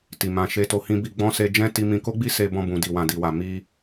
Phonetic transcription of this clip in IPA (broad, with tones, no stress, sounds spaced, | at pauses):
t i˨ m ã˧ ʃ e˦ t o˧ h ĩ˦ b i˧ ɡ͡b ɔ̃˦ s e˧ d͡ʒ ɛ̃˦ t i˧ m ĩ˧ k o˦ ɡ͡b i˦ s e˧ b ɔ̃˧ b ũ˨ d i˨ w ã˨ d i˨ w a˨ m i˧